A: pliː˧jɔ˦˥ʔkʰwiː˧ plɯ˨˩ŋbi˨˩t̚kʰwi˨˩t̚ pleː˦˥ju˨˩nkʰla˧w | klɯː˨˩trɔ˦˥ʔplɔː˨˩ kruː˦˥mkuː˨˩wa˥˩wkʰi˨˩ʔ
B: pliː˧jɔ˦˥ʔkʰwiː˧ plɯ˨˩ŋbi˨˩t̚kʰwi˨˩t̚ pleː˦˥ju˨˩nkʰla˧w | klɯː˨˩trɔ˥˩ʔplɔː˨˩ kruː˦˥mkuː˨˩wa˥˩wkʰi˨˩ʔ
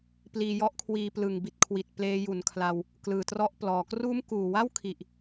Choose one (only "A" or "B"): B